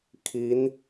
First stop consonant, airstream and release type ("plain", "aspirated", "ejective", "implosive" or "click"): aspirated